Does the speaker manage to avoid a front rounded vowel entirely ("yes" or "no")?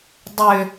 no